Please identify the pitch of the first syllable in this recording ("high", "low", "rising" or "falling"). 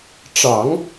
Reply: low